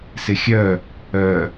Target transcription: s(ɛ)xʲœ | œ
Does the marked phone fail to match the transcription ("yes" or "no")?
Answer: yes